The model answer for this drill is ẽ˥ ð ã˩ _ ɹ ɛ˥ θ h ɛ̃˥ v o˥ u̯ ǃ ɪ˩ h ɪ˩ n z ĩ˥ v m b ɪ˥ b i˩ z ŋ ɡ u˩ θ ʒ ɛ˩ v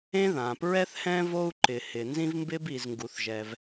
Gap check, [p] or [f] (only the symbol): p